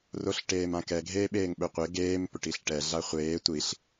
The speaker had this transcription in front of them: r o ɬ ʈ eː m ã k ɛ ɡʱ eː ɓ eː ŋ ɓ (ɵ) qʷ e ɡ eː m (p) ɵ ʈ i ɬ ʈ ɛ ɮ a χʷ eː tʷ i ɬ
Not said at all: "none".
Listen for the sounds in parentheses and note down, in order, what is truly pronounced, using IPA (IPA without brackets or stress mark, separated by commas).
ɵ, p